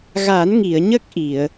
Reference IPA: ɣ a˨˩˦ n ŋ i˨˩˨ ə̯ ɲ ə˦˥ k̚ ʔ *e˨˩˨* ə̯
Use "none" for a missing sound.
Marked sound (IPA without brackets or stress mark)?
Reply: i˨˩˨